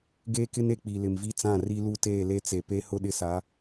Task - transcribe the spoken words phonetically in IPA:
ɡ eː˦ k ɪ˦ n e˨ k͡p i˨ l ɪ˨ m v i˦ t͡s ã˦˨ r i˦ l u˦ t eː˦˨ l e˦ t͡s e˨ p e˦ h ʊ˦ ɗ ɪ˦ s a˨˦

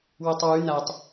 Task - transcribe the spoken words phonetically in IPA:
w u tˤ w ʉ n a tˤ

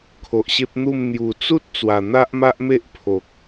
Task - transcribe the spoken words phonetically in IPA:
kʰ o˨ ʔ ɕ e˦ p̚ n̪ u˥˧ m n̪ j u˨˩ t͡s u˦ t̚ t͡s w a˨˩ n̪ a˦ ʔ m a˦ ʔ m e˦ ʔ pʰ o˨ k̚

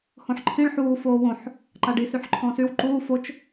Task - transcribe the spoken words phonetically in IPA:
h õ ħ ǃʰ ĩ ɭ ħ uː f oː w õ ħ | ǃ a ɖ i s y ħ ǃʰ ɔ̃ s y w ǃ uː f o t͡ʃ

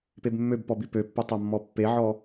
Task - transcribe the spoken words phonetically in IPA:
p e b mː ø b p ɔ b i p ø pː ø tˤ a mː ɔ pː e ʕ ɔ

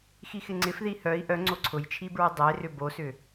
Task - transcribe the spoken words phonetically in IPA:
x i x ɪ ŋ͡ǀ ɪ f ð i h œ i̯ ʔ œ ŋ͡ǀ o ǀʰ ʊ j t͡ʃʰ i b ɹ ɪ dˤ e r ʏ b o s ʏ

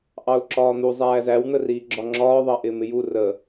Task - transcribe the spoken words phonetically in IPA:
ʔ ɑ ʊ̯ ǁ ɒː n̪ u zˤ æː z æ w n̪ ə r iː ɡ͡ǁ ɒ ŋ͡ǁ ɒː ðˤ ɑ ʔ ɪː m ɪ j u r ə

